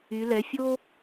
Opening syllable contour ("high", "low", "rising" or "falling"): rising